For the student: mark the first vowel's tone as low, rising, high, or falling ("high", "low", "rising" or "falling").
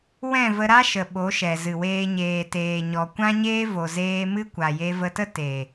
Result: falling